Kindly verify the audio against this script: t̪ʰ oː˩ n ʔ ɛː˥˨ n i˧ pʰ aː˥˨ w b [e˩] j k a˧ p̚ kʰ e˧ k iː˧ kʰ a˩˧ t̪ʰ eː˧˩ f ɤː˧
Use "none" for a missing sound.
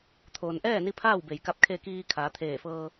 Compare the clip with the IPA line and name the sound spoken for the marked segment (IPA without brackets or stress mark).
e˩